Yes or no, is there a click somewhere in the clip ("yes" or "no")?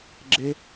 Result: yes